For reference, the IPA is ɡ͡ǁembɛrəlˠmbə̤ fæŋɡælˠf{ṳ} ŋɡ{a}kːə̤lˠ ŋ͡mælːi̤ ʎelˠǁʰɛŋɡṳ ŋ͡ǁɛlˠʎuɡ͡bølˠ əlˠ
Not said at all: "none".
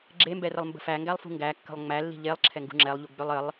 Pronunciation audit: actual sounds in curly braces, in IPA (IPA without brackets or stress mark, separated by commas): ṳ, æ